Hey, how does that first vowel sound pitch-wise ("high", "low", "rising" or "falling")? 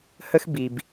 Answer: high